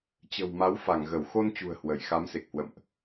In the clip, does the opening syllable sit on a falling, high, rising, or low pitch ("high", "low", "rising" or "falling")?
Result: low